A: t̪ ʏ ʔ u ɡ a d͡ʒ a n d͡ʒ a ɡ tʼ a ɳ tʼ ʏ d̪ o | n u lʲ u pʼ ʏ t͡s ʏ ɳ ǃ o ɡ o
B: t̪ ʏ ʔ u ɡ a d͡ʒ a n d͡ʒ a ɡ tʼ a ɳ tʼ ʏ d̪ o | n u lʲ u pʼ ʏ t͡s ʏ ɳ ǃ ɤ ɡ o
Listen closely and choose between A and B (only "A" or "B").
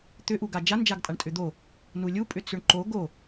A